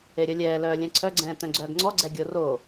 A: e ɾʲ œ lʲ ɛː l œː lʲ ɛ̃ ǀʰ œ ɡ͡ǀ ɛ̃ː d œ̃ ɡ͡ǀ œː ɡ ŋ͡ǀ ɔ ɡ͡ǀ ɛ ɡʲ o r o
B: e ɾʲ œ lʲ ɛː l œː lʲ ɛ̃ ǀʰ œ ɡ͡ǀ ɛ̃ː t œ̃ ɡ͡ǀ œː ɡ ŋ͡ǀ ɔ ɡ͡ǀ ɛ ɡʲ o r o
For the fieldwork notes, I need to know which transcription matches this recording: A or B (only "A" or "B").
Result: B